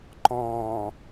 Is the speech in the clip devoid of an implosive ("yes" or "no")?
yes